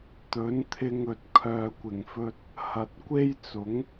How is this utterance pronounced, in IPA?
t̪ ɵ˨˥ n t̪ʰ ɪ˧ ŋ ɵ˨ t̚ kʰ œː˨ kʷ ɪ˨˩ ŋ f ɵ˧ t̚ | h ɐ˨ t̚ kʷ e˥ j t͡s ʊ˨˥ ŋ

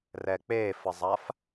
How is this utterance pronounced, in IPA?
r ɛ k͡p e f ə zˤ a f

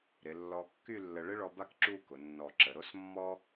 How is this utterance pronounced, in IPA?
ɾ ɪ˩˧ lː ɔ˧ kː y˥˧ lː ə˧ ɭ ɪ˥ ɭ ɔ˧ b a˥˧ k ǁ u˥˧ k ʊ˩˧ nː ɔ˧˩ ǁ ə˩˧ ɾ o˥ s mː ɔ˥

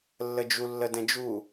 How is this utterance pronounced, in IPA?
lː ə d͡ʒ u lː ə d ɛ̃ d͡ʒ u

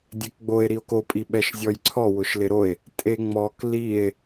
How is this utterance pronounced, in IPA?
dʲ ɛ k ɡ͡b o e̯ ɾ i o̯ k o pʼ i ɓ ɛ ʃ zʲ ɔ j ǀʰ ɔ w ʊ ʃ l ɪ ɾ o e̯ | tʼ e ŋ͡m ɔ k l i e̯

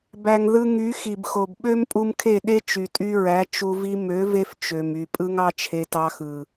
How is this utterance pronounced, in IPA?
b æ˨ ŋ ð ɯ˧ ŋ y˨˦ x i˨ b x o˨ b ɓ ø˦ m pʼ u˧ m kʰ e˦˨ ɗ e˦ t͡ʃ y˨ tʼ y˧ ɹ æ˨˦ t͡ʃ u˧ v i˦ m ø˨˦ v e˧ f t͡ʃ ø˨ m y˨ pʼ ɯ˦ ŋ ɑ˦ t͡ʃʰ e˧ t ɑ˧ x ɯ˨

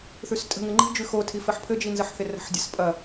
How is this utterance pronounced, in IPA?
θ ʉ s tʼ ə̤ ŋ ɘ ŋ͡ǃ i̤ d͡ʒ ʉ x o tʰ i f ɘ ħ pʰ ɘ d͡ʒ i n z ə ħ θ ɪ r ə̤ ħ dʲ ɐ s pʼ ɐ

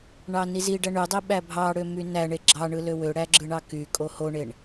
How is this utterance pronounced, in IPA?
ɳ ɑ n i z i ɖ æ ɳ y dˤ i ɓ æ bʱ ɑ ɽ ø m y n æ ɳ e ɡ͡ǁ ɑ ɳ ɯ l ø w ø ɽ æ ɡ͡ǁ ɯ ɳ ɑ k y kʼ o h o ɳ e ɳ

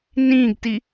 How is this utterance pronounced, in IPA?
n ĩː ɡ t i

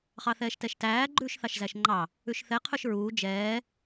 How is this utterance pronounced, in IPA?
χ ɑ θ ɛː ʃ t ɛ ʃ t æː ɡ͡ǃ ʉː ʃ θ ɑ ʃ z æ ʃ ŋ͡ǃ ɑ | ʉ ʃ θ ɛ qʰ ɵ ʃ ɹ uː d͡ʒ ɛː

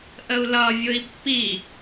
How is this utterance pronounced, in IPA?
ʔ ə u̯ l ʌ vʲ ʊ i̯ pː i

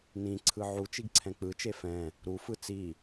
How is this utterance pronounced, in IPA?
n ĩ ǀʰ ɯ ʕ u t͡ʃ i ɡ ǀʰ ɛ̃ k͡p ɯ t͡ʃ e f ɛ̃ | ɾ u f ɯ t͡s i

